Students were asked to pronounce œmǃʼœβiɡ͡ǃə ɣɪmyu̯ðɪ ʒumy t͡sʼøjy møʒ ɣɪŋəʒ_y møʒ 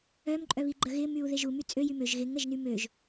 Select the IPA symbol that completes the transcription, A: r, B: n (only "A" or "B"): B